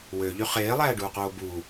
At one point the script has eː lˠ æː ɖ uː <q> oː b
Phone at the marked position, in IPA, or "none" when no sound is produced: q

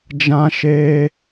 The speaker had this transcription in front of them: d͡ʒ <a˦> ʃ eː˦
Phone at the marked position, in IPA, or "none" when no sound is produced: ã˦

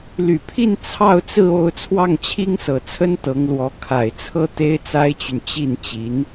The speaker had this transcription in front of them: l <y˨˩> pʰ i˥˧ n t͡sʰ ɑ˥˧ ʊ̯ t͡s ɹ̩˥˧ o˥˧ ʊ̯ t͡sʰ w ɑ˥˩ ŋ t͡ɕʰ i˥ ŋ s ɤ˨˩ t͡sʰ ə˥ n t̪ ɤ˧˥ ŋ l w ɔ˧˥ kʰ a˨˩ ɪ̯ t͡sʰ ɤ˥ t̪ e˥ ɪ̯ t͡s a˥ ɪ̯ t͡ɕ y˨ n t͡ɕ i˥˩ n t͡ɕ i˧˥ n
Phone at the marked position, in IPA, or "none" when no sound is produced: y˨˩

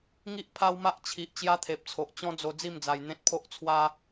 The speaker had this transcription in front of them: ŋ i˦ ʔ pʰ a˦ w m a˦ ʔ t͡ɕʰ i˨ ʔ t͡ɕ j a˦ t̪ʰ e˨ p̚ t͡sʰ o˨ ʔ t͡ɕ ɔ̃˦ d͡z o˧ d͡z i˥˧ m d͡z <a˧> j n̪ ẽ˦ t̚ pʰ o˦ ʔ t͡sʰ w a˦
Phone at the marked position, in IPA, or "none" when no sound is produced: a˧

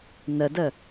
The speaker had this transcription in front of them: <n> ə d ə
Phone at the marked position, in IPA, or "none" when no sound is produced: n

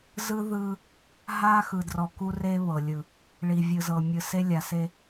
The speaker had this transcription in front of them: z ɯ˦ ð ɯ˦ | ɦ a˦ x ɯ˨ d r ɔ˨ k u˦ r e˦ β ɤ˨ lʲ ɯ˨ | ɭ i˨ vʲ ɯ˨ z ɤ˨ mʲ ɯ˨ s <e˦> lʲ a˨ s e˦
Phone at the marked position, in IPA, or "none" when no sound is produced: e˦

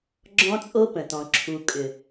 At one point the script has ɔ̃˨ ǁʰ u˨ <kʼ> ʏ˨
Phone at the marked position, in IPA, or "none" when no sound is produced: kʼ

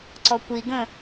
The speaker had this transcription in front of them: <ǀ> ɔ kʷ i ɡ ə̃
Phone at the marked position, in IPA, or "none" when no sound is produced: ǀ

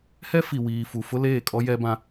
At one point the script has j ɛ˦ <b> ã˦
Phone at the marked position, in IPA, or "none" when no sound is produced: b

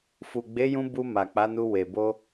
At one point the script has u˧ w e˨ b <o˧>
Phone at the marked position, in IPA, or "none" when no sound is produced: o˧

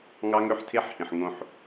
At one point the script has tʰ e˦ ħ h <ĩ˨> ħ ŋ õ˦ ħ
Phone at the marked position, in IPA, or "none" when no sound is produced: ĩ˨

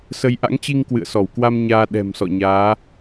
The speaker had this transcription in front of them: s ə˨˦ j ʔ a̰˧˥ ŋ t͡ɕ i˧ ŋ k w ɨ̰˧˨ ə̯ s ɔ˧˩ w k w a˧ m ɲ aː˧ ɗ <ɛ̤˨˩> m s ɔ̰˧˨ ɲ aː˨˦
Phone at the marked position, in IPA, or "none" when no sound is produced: ɛ̤˨˩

